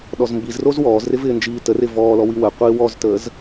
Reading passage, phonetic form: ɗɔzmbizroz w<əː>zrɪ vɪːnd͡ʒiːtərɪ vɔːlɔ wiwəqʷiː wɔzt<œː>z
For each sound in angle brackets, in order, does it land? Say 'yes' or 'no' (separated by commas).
no, no